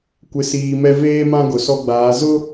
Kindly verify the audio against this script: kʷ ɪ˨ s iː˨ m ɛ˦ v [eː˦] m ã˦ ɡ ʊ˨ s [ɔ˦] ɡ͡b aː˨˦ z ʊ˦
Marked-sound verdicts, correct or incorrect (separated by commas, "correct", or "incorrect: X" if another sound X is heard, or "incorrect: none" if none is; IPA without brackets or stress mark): correct, correct